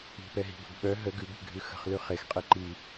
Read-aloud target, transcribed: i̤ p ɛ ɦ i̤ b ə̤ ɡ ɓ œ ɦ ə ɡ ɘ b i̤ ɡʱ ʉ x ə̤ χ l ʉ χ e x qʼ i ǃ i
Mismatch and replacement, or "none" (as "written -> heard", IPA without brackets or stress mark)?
ɘ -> ʉ